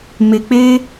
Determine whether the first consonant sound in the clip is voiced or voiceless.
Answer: voiced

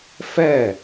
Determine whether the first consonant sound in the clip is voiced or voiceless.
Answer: voiceless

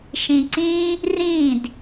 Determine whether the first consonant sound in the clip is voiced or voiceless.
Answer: voiceless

